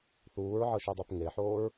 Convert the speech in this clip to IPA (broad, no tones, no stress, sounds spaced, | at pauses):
θ uː ɹ ʕ ɤ ʃ u dˤ e p ŋ e ħ oː ɹ